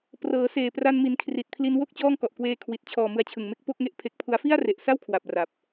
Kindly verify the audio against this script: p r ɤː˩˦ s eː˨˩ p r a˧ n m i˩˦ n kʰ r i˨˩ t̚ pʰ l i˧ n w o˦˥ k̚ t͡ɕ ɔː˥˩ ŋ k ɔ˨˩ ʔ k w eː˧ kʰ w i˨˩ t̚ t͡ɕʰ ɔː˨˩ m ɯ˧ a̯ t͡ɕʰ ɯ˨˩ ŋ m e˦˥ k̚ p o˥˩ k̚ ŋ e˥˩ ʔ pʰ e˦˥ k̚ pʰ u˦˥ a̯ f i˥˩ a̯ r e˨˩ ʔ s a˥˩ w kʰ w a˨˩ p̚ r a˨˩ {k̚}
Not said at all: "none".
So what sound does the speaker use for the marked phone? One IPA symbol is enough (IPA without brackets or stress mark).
p̚